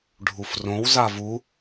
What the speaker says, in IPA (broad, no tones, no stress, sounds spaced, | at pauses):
ɖʱ u f r õ w z a v u